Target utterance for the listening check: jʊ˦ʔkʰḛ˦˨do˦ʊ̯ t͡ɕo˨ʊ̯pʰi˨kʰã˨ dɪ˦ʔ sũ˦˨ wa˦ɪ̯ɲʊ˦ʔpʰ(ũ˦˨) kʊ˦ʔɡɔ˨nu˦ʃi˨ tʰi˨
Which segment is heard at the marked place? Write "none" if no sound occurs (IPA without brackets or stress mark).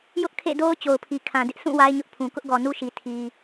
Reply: ũ˨